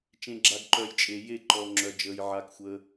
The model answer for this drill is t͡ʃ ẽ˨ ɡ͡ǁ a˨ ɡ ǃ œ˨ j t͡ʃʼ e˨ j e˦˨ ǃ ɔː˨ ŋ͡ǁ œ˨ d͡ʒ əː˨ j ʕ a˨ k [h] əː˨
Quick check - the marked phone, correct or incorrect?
incorrect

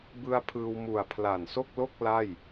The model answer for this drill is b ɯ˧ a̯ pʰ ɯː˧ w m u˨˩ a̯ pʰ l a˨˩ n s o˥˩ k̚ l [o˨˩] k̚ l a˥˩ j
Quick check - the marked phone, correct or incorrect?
incorrect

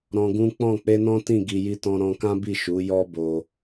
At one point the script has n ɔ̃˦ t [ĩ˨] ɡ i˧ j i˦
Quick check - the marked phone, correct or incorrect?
incorrect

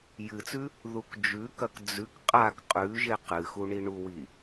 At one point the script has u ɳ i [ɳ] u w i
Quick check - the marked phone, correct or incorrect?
correct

